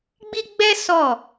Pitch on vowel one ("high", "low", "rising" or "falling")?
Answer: high